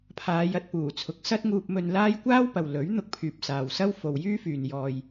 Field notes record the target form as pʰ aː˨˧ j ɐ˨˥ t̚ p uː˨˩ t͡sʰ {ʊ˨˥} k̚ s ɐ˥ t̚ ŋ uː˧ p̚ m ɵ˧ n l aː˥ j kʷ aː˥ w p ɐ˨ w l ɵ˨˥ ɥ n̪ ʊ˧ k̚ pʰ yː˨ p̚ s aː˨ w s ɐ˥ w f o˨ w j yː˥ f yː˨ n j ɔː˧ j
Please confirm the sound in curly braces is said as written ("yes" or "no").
yes